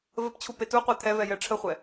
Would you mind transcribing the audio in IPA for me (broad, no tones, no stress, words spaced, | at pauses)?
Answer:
vəpt͡ɕʰu petuqʷɛ t̪ʰɛvɛjɛ ʈ͡ʂʰəχʷɛ